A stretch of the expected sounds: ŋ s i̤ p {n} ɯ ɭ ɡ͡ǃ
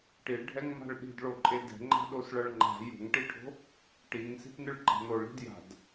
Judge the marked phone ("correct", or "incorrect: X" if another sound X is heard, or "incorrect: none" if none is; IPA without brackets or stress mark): correct